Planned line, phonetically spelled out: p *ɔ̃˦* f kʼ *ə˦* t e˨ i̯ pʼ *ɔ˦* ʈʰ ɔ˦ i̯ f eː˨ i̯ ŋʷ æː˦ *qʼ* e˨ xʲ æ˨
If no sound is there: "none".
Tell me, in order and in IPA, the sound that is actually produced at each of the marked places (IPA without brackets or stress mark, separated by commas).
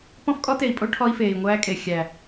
ɔ̃˦, ɔ˦, o˦, kʼ